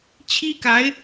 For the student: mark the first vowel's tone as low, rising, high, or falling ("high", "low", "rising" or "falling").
high